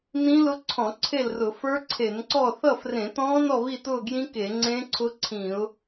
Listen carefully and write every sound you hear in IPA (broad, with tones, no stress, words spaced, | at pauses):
nĩ˦˥lʊ˦˥ ǀʰɔ̃˧˩˧ ǀʰe˥˨lrʊ˧˩˧ fə˞˦˥ǀʰe˧˩˧nǀɔ˥˨ θʌ˥˨frẽ˧˩˧tɔ̃ː˦˥ nɔ˥˨βi˥˨tʊː˥˨ɡjĩ˦˥ ke˧˩˧ŋ͡ǀẽː˦˥ǀʰʊ˦˥ǀʰĩː˧˩˧ʊ̯